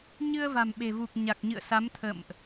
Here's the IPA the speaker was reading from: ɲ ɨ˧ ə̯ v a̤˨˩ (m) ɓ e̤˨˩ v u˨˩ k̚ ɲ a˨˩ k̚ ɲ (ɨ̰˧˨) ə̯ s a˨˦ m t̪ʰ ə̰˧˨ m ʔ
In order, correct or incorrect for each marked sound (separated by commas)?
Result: correct, correct